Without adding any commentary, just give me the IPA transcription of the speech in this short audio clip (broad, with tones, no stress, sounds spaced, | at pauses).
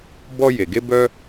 b ɔ˧ j e˩ ɡ e˧ b œ˧